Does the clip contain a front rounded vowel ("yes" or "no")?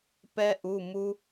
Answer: no